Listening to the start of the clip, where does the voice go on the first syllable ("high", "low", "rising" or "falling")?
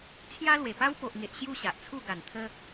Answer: high